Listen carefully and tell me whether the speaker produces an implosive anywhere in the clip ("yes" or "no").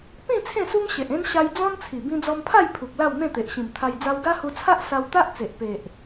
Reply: no